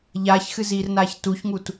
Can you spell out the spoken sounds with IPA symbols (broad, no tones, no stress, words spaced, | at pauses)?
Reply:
ʎaːçxɨziːrnaːç tuçŋut